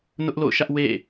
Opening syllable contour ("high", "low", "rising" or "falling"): high